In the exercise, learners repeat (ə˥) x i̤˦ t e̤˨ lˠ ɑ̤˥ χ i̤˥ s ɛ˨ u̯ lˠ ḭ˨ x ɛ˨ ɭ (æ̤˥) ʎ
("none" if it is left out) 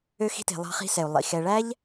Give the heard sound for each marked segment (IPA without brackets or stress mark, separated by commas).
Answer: ø˥, æ˥